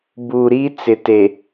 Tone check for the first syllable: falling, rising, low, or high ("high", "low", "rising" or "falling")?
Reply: low